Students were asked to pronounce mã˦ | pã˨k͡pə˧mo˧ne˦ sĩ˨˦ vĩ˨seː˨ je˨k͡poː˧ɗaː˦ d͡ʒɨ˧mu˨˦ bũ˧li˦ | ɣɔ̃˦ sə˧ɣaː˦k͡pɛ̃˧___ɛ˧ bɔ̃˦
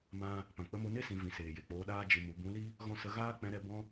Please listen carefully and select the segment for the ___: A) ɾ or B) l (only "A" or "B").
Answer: A